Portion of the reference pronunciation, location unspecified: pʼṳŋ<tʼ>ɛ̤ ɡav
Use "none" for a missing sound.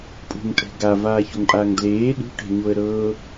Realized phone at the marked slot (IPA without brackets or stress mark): tʼ